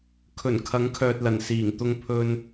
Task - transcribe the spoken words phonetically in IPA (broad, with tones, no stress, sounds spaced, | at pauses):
kʰ ɵ˨˩ n kʰ ɐ˨˧ ŋ kʰ œː˨ t̚ l ɐ˨˩ n s iː˨˩ ŋ t̪ ʊ˧ ŋ pʰ ɵ˧ n